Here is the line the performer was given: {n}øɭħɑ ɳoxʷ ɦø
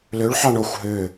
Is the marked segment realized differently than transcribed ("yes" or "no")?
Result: yes